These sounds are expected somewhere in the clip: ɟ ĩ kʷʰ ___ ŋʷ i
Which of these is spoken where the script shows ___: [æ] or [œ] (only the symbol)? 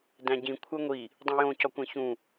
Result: æ